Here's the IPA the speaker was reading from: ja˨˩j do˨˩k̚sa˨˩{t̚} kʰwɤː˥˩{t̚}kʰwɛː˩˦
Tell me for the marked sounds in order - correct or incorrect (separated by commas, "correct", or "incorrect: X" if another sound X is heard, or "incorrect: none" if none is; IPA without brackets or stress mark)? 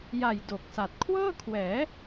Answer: correct, incorrect: none